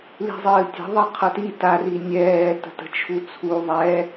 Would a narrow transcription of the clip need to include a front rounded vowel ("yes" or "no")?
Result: no